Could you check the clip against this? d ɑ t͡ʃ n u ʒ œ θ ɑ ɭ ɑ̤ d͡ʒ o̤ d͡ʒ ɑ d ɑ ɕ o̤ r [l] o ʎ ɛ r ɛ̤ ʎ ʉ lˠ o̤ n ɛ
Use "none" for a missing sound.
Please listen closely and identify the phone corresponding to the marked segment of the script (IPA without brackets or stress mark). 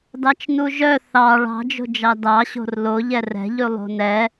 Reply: l